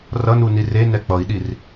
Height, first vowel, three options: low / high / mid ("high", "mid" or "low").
mid